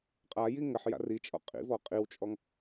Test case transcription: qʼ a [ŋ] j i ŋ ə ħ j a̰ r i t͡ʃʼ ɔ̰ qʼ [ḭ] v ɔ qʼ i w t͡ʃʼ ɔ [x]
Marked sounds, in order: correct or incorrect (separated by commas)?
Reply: incorrect, correct, incorrect